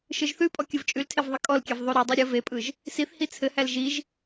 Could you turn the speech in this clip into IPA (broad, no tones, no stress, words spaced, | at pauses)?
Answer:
ʃɯʒθʉpʼɔ kʲɯvt͡ʃʼʉltʰev ðˤəkʼɔlkʲɛv ðˤuɾʉdˤe ɾʲə vepʼɯʒ | siθhi t͡sʰɘhæl ʒiʒ